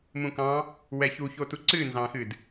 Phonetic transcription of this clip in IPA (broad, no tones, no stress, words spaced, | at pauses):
mũkɑ̃ | wɛçuçotu ǀɨnzɑ̃xɨd